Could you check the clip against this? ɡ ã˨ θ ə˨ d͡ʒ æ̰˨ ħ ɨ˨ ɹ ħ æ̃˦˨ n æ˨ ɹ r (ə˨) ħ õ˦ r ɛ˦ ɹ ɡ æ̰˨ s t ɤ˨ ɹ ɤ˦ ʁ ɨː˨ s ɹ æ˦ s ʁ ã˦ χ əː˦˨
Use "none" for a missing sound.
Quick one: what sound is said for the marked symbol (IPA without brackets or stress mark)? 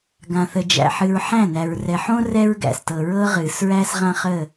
ɛ˨